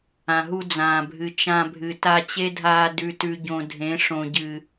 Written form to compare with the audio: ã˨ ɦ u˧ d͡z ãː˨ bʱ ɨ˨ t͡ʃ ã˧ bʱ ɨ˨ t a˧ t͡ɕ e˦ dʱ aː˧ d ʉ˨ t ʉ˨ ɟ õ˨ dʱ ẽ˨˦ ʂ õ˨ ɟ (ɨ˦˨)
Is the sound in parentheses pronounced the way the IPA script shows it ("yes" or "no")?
no